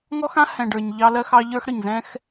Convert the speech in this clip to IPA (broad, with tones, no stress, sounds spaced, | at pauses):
ŋ ɔ˦ x ã˦ h ɛ̃˨ ɖ ə˞˨ ɲ ʎ ɑ˦ l ɜ˦ x ɑ˦ ʎ ə˞˦ x ɽ ə˨ ɲ z ɛ̃˦ x